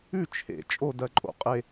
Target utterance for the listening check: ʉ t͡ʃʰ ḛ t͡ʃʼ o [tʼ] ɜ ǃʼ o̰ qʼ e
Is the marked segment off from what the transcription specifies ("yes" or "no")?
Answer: yes